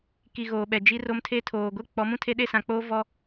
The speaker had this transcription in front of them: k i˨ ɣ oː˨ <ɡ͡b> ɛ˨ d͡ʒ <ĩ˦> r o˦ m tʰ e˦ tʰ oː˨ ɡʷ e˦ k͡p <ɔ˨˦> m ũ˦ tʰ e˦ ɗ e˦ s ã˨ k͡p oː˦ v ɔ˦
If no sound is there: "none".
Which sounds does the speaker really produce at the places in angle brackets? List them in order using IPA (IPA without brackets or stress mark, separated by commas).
ɓ, i˦, ɔ˨˦